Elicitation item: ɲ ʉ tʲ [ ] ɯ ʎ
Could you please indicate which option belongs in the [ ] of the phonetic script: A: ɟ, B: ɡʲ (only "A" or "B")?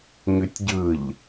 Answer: A